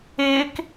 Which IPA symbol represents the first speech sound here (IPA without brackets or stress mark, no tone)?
ɪː